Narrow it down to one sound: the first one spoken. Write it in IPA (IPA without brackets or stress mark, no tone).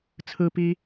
t͡sʰ